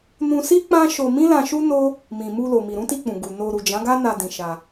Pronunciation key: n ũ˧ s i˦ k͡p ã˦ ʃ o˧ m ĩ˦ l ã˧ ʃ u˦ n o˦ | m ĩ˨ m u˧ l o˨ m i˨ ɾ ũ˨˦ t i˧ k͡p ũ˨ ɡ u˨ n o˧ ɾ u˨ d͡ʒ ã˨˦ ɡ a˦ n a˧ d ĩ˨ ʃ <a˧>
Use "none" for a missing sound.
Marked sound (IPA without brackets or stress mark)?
a˧